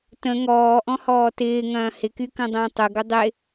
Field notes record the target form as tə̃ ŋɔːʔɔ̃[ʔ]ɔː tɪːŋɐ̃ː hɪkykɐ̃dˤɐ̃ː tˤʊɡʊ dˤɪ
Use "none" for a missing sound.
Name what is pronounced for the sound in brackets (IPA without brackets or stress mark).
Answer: h